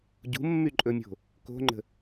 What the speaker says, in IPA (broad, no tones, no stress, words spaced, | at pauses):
ɟṳmːyǃʼɵmʲo̤ | ko̤ŋ͡ǃə̤